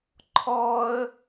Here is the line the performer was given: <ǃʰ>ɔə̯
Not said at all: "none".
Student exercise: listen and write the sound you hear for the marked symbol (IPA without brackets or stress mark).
ǃʰ